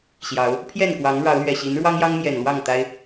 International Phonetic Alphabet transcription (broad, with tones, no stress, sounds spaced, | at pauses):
ɕ j ɑ˨˦ ʊ̯ | pʰ j ɛ˥˨ n k w ɑ˨˦ ŋ ɻ ɑ˨˦ ʊ̯ l ɥ ɛ˨˩ ɕ i˨˦ n ɻ w ɑ˦ ŋ j ɑ˦ ŋ m j ɛ˨˩ n l w ɑ˥˨ ŋ t̪ a˦ ɪ̯